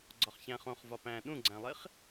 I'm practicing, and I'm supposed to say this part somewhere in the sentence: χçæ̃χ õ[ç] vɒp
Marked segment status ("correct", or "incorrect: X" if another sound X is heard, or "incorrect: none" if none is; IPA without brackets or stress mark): incorrect: χ